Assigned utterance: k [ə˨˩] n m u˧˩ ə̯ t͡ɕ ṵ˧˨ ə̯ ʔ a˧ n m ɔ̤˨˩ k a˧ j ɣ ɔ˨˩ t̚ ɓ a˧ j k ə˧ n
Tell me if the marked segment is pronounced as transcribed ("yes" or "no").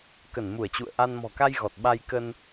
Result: no